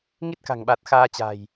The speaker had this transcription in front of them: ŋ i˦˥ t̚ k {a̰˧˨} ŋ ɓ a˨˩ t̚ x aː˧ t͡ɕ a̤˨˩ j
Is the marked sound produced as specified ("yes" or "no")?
no